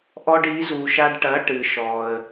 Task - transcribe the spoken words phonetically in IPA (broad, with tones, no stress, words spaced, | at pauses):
ʔɔ˧ɖi˩˥zu˩ ʃa˧ɖʈɐ˩˥ ʈɨ˩ʃɔ˩ə̯